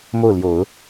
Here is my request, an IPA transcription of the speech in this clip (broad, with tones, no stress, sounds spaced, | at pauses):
m o˥˩ ʊ̯ l j o˨˩˦ ʊ̯